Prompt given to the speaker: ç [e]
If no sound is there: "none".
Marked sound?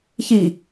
i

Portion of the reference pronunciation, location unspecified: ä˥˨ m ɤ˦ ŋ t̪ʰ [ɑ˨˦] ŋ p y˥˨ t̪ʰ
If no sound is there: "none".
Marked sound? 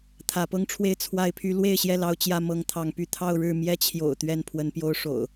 ɑ˨˦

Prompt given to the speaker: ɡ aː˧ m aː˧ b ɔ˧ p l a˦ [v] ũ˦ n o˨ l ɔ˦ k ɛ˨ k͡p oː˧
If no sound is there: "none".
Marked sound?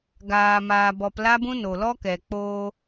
b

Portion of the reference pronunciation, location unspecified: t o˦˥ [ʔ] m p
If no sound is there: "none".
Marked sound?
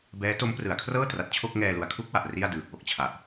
none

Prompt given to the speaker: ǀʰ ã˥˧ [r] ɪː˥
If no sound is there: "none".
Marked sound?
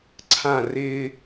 r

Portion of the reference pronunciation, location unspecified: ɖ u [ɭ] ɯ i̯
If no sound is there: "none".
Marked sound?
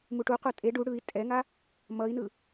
ɽ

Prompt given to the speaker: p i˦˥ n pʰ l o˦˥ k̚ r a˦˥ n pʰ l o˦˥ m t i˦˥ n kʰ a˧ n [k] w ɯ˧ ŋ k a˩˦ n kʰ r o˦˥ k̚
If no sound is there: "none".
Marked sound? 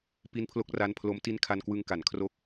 k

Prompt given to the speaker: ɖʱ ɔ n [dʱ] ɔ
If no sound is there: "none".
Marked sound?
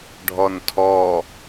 tʰ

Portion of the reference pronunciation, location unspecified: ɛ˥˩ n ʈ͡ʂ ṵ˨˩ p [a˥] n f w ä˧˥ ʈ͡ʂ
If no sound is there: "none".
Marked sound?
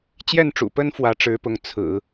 ə˥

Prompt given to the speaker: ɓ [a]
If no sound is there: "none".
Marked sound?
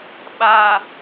a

